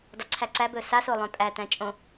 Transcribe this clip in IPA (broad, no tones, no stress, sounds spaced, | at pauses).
d ɒ ǀʰ æ ǀ æ b ɵ s a s o lˠ œ̃ pʼ æ t æ̃ t͡ʃʼ õ